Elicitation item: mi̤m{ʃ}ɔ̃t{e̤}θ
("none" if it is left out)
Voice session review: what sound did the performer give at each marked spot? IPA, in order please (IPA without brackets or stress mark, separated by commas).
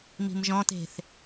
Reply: ʒ, e̤